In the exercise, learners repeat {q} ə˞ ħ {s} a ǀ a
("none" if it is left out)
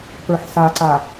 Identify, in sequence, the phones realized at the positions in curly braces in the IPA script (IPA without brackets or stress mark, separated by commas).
p, s